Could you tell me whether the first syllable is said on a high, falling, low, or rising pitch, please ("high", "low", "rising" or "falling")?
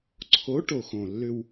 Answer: rising